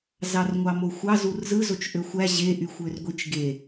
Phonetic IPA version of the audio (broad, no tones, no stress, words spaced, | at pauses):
zɑrŋʷɑmoxʷɑ zurzɯzot͡ʃ ʔøxʷæ ʑe ʔyxʷørɡʷit͡ʃ ɡe